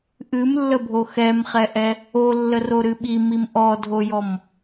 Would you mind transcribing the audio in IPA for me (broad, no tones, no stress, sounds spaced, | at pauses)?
ʔ ɨ m lː ə bʱ o x ɛ m χ ɛ ʔ ɛ | o lː ə r o ɾ ɨ ɓ i m i m ʔ ɔ dʱ o j ɔ m